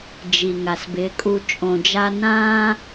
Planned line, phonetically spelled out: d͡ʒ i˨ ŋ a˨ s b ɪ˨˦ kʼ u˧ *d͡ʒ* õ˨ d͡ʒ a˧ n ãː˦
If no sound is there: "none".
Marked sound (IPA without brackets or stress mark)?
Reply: t͡ʃʼ